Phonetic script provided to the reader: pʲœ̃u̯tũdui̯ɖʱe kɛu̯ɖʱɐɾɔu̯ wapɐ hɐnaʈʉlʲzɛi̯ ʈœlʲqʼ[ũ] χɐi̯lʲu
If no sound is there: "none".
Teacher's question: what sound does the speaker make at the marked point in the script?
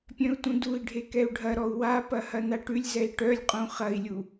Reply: ũ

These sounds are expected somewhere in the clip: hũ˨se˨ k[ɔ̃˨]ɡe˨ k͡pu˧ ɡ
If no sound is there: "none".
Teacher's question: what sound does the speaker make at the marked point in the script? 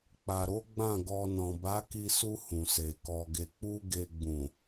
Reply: ɔ˨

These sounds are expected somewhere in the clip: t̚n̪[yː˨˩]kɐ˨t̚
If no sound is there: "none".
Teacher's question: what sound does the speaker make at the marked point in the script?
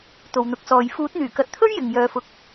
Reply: yː˨˩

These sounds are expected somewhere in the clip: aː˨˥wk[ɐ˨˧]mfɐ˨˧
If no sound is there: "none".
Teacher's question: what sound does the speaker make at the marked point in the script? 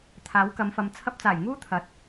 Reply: ɐ˨˧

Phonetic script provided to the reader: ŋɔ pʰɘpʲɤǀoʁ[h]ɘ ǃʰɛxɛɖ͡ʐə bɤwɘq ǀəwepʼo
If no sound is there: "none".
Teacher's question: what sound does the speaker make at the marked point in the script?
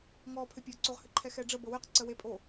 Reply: h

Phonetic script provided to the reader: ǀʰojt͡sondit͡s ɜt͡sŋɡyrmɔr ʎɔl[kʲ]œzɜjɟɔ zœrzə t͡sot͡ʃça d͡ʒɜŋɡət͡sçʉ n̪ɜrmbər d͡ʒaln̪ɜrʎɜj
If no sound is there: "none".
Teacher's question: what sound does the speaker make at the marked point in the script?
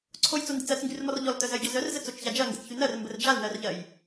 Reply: t̪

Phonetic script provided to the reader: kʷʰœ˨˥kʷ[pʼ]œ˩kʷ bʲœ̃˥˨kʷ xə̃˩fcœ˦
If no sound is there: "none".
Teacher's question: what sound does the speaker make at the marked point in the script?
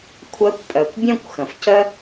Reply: pʼ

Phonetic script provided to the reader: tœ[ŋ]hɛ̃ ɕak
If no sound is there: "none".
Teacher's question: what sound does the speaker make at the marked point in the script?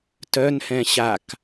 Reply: n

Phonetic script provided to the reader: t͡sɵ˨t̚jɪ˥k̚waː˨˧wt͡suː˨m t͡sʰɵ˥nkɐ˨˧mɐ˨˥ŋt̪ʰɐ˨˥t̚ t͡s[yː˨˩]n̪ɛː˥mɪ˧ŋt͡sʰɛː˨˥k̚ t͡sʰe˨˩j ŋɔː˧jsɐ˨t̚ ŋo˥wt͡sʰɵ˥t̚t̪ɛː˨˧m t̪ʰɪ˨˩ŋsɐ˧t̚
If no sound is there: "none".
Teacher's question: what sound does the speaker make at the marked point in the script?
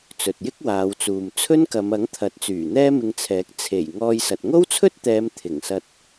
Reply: yː˨˩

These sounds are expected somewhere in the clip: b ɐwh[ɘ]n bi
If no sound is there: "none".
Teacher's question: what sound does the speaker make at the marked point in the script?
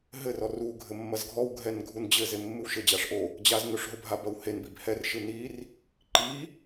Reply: e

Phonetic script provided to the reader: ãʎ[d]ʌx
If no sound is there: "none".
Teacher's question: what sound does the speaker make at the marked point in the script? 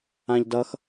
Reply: d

